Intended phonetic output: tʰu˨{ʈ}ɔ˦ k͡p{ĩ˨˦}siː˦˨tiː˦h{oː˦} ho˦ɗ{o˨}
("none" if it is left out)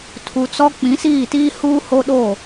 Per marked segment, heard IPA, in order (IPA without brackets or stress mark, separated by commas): t͡s, ĩ˨˦, uː˦, o˦˨